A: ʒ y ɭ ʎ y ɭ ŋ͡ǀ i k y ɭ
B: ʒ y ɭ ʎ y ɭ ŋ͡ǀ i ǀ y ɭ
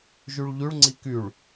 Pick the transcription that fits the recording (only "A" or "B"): A